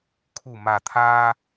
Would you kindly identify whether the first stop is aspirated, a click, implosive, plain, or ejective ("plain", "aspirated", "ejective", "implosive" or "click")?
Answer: aspirated